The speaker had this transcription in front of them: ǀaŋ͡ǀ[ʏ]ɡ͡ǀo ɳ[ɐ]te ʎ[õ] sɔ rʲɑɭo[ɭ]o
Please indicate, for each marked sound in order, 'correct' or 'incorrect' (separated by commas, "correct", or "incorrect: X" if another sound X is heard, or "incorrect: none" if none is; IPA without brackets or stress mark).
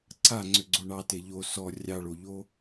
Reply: correct, incorrect: ɑ, incorrect: o, incorrect: ʎ